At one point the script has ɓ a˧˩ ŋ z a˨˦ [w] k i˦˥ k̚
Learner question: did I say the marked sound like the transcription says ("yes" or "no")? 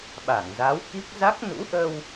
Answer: yes